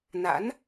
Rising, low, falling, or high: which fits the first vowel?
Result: rising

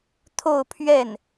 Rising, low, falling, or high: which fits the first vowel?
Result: falling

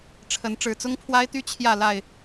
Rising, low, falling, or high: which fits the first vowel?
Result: rising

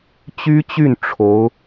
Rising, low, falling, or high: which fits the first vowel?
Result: high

